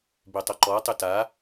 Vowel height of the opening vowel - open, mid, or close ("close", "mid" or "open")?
mid